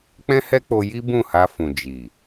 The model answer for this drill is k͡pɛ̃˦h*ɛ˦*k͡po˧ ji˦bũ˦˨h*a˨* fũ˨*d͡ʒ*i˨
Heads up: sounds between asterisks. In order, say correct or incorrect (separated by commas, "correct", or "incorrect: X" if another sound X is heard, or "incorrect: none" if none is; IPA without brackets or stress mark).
correct, incorrect: a˧, correct